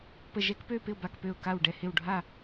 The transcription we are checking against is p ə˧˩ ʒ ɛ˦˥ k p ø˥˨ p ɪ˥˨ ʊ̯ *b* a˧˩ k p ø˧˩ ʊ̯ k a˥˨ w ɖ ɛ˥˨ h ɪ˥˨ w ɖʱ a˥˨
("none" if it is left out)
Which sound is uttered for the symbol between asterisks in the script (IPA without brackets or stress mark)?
b